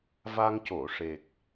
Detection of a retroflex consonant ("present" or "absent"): present